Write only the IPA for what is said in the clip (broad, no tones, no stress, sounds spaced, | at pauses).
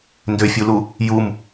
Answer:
n d ø fʲ u l u | j u m